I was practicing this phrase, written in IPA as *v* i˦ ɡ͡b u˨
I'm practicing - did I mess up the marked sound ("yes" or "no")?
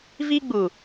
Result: no